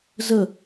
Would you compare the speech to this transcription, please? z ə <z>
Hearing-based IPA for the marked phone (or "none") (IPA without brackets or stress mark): none